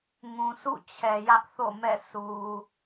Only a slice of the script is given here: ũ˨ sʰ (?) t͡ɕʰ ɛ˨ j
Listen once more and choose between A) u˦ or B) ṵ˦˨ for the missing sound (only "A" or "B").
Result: B